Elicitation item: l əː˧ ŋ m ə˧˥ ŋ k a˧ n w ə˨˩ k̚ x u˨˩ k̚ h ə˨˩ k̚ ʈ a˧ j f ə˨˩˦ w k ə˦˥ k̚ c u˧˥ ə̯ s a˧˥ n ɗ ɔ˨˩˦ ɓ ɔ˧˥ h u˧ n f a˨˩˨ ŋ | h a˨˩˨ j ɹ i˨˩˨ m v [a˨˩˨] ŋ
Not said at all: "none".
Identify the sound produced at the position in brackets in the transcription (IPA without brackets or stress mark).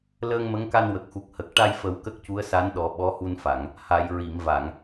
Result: a˨˩˨